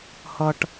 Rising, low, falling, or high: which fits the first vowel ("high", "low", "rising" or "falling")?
high